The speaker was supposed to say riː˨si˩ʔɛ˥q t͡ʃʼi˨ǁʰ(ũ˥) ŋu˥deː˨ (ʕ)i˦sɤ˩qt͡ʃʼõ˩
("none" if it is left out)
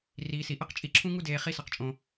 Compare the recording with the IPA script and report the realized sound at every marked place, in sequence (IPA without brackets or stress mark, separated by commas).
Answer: ũ˥, χ